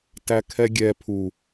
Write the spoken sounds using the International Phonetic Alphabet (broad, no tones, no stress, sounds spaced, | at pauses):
t æ kʰ ɛ ɡʲ ɛ pʰ u